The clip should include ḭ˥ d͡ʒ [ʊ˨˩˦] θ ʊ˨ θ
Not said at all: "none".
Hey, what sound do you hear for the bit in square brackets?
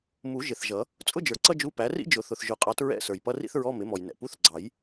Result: ʊ˨˩˦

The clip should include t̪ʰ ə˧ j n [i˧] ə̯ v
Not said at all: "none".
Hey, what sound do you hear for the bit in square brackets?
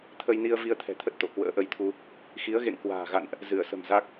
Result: i˧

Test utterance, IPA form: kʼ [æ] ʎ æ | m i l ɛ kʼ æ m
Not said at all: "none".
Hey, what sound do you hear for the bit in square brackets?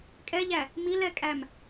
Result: ɛ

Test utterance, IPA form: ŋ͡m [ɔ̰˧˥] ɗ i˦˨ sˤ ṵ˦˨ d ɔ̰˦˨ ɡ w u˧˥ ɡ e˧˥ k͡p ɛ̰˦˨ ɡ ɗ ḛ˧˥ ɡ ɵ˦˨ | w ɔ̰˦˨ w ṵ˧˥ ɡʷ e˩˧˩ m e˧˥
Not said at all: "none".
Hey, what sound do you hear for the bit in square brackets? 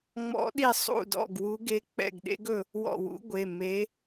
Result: ɔ̰˧˥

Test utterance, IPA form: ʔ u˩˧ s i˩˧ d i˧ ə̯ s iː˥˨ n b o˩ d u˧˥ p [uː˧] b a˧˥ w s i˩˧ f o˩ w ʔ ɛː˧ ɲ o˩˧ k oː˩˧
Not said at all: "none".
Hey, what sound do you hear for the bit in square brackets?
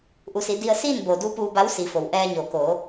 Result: uː˧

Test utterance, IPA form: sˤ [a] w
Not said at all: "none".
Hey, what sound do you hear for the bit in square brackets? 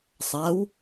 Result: a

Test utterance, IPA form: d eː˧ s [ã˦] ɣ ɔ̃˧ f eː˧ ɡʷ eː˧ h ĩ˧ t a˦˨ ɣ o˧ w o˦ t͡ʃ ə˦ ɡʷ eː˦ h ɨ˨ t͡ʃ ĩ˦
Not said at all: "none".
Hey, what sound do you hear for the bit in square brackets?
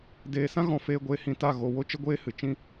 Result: ã˦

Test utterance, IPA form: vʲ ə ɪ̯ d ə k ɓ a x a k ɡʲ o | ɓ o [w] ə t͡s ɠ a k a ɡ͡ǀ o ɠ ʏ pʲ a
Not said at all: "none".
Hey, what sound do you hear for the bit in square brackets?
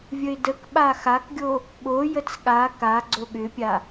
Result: j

